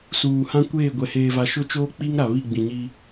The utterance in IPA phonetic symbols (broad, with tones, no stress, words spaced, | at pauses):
suː˨hã˦kʷeː˦˨ɡʷɛ˨ heː˨va˨ ʃʊ˦t͡ʃoː˦ k͡pi˦ŋ ɾa˨βi˦˨ɡ͡bĩ˨ɲi˦